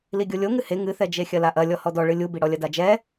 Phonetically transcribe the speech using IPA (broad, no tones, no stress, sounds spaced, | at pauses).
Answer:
l i ɡʲ o lʲ o ŋ ɨ h e ŋ ɨ θ ɛ d͡ʒ e xʲ ɐ l a ʔ ɐ lʲ ɔ h ɔ d ɔ ɭ ɨ lʲ u b i ɽ ɔ lʲ ɐ d a d͡ʒ ɛ